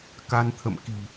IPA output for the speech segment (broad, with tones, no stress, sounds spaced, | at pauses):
k a˧ n t̪ʰ ə̰˧˨ m k i̤˨˩